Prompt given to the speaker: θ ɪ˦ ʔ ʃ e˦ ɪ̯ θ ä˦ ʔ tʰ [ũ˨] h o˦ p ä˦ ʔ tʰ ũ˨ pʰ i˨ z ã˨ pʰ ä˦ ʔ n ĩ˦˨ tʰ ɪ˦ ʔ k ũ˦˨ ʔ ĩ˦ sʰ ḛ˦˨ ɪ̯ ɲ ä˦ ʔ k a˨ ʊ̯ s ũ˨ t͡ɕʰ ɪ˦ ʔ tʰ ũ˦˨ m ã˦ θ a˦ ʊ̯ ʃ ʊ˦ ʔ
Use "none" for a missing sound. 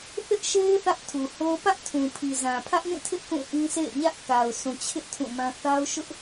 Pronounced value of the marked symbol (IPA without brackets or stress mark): u˨